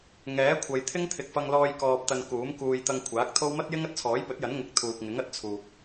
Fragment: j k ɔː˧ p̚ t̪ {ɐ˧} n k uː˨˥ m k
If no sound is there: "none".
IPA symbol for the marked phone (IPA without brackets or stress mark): ɐ˧